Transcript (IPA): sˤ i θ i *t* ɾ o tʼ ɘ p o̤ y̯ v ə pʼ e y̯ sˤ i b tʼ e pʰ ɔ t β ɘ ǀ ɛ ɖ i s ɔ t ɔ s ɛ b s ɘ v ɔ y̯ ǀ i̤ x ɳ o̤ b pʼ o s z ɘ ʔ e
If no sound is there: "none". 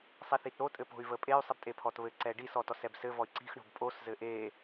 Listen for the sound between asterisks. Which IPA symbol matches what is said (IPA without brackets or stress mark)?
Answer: t